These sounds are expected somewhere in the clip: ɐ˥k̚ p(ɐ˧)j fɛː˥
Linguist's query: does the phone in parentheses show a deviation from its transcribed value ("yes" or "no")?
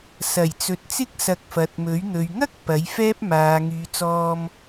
yes